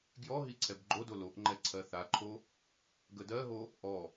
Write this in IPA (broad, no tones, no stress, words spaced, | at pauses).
ɡjɔɦi ǀʰɛbɡ͡ǃodo loʔŋ͡ǃɛ ǀʰɜθaǃʰo | ɡədɜɦo | ʔɔ